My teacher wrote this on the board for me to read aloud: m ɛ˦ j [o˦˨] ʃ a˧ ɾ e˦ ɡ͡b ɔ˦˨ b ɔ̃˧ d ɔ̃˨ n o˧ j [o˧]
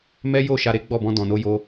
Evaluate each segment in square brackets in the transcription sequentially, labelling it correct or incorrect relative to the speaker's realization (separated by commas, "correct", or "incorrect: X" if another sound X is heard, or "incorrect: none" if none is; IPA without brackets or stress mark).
correct, correct